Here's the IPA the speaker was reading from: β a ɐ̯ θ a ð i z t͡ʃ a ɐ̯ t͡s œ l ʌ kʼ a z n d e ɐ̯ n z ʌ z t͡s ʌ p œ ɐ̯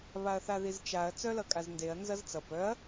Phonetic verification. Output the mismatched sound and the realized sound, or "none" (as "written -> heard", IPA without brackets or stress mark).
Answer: none